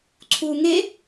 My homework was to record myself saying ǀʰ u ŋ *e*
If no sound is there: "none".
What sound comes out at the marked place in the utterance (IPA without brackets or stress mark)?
e